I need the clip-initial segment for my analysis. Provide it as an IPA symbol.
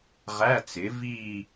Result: ʁ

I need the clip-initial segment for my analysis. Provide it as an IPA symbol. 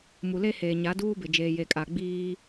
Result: m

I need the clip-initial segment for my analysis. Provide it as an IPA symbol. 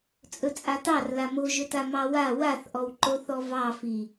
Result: t͡sʼ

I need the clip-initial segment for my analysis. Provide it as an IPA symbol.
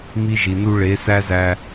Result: m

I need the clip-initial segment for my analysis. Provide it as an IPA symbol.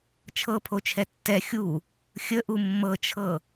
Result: t͡ʃʰ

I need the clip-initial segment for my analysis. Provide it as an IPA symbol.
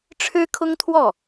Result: ʈ͡ʂʰ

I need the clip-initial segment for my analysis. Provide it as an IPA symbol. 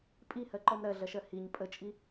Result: pʼ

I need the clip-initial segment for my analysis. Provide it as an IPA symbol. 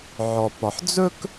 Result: ʕ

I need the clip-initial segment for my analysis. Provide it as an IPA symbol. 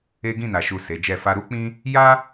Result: e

